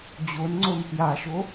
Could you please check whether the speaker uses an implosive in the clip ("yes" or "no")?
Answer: no